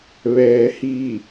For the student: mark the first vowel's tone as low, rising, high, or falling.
low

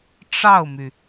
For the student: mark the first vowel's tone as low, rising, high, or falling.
falling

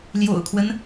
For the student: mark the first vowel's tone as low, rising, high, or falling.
low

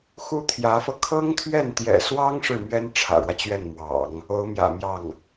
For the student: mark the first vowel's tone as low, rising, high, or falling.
high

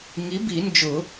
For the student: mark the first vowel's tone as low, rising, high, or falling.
rising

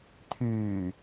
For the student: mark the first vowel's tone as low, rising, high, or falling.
low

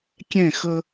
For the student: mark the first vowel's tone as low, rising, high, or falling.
falling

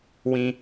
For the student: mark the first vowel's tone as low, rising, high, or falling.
high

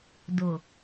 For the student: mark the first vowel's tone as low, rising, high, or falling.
low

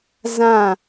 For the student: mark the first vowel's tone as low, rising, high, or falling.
falling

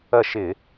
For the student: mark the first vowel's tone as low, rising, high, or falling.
falling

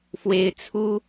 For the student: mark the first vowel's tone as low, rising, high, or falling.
high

